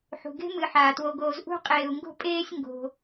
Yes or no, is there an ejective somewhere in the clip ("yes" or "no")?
yes